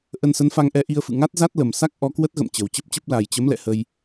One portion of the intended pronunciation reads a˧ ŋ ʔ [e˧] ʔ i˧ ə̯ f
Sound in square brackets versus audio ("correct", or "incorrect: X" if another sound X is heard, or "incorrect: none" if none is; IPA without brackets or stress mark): incorrect: ɛ˧